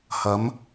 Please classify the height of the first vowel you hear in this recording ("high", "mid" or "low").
low